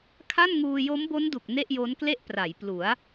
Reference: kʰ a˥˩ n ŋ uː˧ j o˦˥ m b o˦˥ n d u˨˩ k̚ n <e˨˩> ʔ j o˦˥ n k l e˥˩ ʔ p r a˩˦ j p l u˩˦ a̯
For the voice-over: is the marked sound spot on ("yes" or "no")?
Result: no